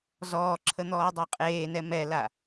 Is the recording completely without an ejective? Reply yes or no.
no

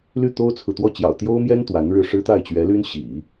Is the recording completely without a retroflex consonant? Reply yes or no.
no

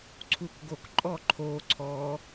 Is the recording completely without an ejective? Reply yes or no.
no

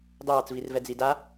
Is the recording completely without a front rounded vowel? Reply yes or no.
yes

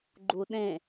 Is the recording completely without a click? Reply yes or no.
no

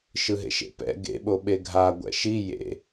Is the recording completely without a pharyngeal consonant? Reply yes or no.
yes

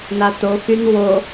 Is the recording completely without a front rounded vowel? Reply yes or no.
no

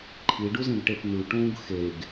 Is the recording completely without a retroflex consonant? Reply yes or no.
no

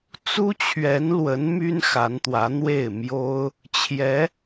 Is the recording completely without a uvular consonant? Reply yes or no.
yes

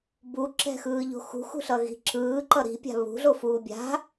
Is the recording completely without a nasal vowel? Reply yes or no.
yes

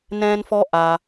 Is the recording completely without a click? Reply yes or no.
yes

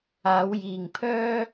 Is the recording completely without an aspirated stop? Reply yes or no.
no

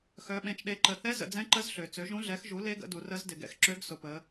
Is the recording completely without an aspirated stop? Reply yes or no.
yes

